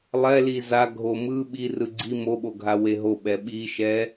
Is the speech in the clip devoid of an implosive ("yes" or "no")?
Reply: no